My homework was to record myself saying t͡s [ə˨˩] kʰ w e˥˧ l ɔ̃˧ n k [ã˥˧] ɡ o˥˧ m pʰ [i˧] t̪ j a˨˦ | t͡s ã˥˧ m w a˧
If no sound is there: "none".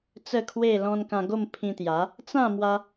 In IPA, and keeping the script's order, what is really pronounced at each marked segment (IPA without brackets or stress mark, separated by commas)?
ə˥˧, ã˧, ĩ˧